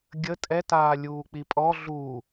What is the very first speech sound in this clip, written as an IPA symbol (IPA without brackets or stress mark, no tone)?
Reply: ɡʲ